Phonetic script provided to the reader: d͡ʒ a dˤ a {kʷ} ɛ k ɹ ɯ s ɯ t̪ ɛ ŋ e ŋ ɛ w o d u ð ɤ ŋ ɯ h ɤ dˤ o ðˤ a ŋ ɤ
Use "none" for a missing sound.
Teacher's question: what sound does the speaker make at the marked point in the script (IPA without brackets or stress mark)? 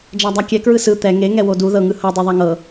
kʲ